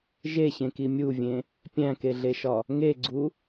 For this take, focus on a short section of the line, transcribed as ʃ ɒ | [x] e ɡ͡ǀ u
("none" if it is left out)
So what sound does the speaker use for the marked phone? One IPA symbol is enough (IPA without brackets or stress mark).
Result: ŋ